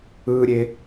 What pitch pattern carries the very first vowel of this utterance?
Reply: high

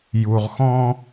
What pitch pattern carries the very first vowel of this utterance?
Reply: low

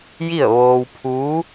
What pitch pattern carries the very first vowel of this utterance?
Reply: falling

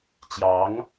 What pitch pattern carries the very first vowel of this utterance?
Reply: rising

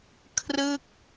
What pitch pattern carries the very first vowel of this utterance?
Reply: falling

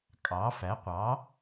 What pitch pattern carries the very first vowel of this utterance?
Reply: rising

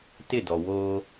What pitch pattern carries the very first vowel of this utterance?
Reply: falling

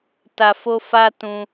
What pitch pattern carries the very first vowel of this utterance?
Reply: low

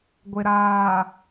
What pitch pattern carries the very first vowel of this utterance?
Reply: low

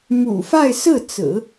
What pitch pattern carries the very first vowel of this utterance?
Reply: low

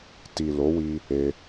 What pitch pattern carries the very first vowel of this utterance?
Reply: low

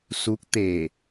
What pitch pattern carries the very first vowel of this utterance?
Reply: rising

